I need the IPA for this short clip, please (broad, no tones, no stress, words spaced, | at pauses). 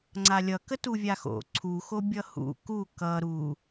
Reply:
ŋ͡ǀalʲʌkə tuvʲaxo̰ ǀʰuxo bʲʌhṵ ku kʌ ɾu